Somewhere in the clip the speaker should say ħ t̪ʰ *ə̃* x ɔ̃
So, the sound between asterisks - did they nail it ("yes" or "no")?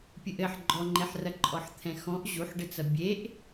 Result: no